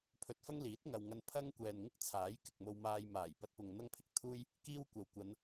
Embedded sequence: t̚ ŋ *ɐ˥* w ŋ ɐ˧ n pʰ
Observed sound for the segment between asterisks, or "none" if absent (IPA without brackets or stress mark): ɐ˨